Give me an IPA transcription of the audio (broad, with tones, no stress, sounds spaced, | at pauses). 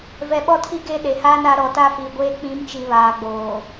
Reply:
v ɛ˨ ɓ ɔ˦˨ tʰ i˦ ɡ e˦ ɗ e˨ h aː˦ n a˨˦ ɾ ɔ˨ t a˦ f iː˨ ɡʷ eː˦ k͡p ĩ˨˦ m t͡ʃ i˨ β aː˨ ɡ͡b oː˨